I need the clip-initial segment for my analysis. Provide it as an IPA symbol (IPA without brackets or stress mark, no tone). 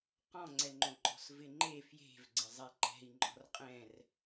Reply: q